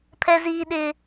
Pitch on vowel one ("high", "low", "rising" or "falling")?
high